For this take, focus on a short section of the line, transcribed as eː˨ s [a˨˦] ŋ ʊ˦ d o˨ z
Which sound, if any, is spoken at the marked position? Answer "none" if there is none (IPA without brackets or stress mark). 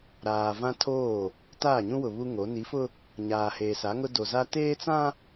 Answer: a˨˦